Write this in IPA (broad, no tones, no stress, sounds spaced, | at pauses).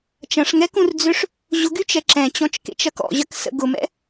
t͡ʃ ɐ̃ ʂ ŋ ɛ k ũ r d͡z ʏ ʂ | ʑ ʊ ɡ y t͡ʃ ɛ ǁ ɛ̃ t͡ɕ ɔ̃ t͡ʃ k ḛ t͡ʃ ɐ k ɔ̰ ʑ ɐ k s ə̰ ɡ ʊ m ɛ̰